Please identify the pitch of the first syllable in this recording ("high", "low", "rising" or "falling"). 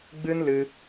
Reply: high